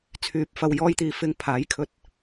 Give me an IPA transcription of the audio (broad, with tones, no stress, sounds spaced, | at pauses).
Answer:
t͡sʰ yː˨ p̚ f ɐ˧ w j ɔː˧ j t̪ iː˨ f ɪ˧ ŋ pʰ aː˨˥ j kʰ ɵ˧ t̚